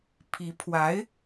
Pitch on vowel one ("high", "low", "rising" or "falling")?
rising